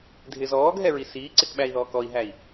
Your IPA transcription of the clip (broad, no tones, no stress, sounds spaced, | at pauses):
dʱ ɪ z ɔː ɡ ɦ ɛ ɹ i s iː ǀ ɪ k ɓ æ i̯ ð ɔː k ɔ i̯ ɦ æ i̯